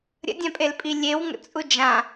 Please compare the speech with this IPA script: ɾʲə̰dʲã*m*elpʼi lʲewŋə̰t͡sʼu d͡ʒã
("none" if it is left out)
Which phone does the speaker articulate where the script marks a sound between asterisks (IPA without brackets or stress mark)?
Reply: pʼ